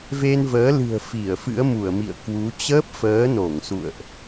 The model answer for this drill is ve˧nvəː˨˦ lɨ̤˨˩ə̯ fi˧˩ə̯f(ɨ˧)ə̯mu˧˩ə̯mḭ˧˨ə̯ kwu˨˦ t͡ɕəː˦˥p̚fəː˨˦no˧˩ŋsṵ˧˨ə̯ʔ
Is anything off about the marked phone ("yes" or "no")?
yes